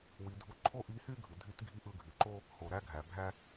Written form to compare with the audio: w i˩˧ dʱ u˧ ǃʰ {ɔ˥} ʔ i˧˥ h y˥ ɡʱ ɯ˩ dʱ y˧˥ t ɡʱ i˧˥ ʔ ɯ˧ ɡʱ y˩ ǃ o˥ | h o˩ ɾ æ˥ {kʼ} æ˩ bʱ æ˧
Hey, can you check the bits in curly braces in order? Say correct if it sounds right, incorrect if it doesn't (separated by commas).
incorrect, incorrect